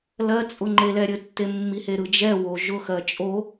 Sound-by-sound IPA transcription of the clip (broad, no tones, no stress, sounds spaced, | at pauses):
l ɜ t͡sʼ ʊ ŋ͡ǃ e l ɛ ɾʲ ɘ tː e mː i h e ɾ ɯ d͡ʒ ɛ w o ʒ ʊ x ɜ t͡ʃʼ o